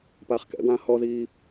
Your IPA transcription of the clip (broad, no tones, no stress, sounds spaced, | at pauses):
p aː χ k ɛ̰ w ãː h ɔ ð iː